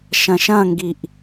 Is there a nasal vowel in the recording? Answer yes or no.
yes